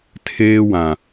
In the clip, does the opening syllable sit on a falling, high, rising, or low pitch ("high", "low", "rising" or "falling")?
high